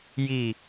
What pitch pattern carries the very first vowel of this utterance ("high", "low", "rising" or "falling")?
low